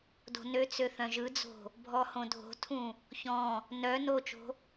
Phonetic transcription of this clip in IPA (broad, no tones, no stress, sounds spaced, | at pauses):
d o̤ n ø t͡s ø θ œ̃ ʒ ɯ d͡z o̤ | bʱ ɔ h õ dʱ o̤ tʰ ũ | ç ɔ̃ | n œ n o t͡ʃ o̤